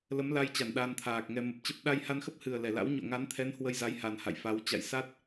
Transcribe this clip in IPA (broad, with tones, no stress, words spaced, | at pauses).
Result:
lə˨˦mla˧jt͡ɕa˧˩n ɗa˧nt̪ʰaː˨˩k̚ŋɛ˧ mə˨˩p̚t͡ɕə˦˥p̚ ɗa˧jha˧nxə˦˥p̚hɨ˨˩ə̯ lɛ˧˩la̰˧˥w ɲo̰˧˨ŋa˨˦nt̪ʰɛ˨˦n hwə˧jza˨˦jha˨˩n ha̰˧˨jfa˨˦wt͡ɕa̰˧˨j sa˦˥t̚